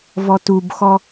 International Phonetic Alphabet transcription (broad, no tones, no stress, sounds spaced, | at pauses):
v ɔ t u b x ɔ